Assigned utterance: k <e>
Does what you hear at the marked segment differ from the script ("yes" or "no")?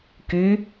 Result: yes